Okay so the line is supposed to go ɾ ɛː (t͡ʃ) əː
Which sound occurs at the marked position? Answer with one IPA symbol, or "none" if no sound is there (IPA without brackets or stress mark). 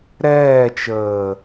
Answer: t͡ʃ